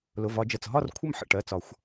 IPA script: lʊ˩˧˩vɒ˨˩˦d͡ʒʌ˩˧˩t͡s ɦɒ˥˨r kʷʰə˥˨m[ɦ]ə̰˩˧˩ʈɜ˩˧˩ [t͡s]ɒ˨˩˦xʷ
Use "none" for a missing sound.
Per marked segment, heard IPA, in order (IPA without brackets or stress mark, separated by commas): ħ, t͡s